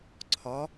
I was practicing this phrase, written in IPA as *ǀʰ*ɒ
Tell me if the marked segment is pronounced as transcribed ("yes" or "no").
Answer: yes